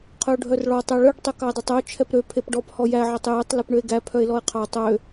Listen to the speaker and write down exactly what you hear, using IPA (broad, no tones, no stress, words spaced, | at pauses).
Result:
qʰœo̯ɖʱœrɭɔ tˤæɭœɖ tˤøkɑe̯dˤɵtˤœo̯ t͡ʃʰɛpɾø pʰepɖɔp hɔjæ ʕɑtˤjetˤ lepɳøe̯ɡæ pʰœe̯lɔe̯qʰɑ tˤø